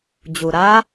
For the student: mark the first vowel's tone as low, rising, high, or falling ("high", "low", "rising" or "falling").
low